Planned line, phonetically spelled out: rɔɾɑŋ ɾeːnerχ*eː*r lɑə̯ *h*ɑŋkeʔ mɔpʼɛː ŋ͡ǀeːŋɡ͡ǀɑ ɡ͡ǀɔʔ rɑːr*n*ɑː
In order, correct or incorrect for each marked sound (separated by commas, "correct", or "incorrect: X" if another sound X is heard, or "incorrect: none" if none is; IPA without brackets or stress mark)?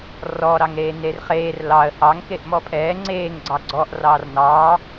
correct, correct, correct